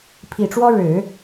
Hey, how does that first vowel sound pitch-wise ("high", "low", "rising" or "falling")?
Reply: low